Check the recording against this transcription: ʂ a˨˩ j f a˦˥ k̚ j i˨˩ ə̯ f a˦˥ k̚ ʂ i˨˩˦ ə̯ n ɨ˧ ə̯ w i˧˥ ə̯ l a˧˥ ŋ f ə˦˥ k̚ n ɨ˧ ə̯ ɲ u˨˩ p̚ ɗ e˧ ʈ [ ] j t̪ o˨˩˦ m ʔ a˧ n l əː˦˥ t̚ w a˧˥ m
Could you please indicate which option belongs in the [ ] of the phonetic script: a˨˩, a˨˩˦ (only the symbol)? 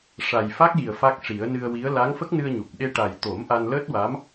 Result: a˨˩